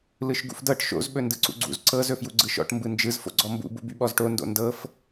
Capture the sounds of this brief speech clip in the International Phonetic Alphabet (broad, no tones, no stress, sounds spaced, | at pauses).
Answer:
l ɯ ʃ ɡ ṵ f d ɤ ʈ ʃ o̰ z ɓ ɵ n d ɯ ǀ ṵ ɡ͡ǀ ṵ z ǀ ɤ z ɵ f j u ɡ͡ǀ ɯ ʃ ɔ̰ ʈ m b ɯ n d͡ʒ ɯ z f o̰ ɡ͡ǀ ɔ m b ṵ b ṵ b y ɓ ɔ z ʈ o n d o̰ n d ɤ f